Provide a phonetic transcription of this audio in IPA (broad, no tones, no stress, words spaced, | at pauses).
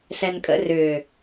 sɛnkʼə̰ rʏː